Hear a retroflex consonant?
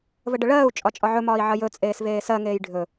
yes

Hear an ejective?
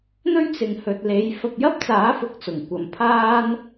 no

